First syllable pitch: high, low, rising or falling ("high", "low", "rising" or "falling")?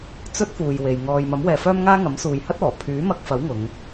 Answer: high